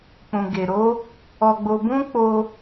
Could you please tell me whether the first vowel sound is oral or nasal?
nasal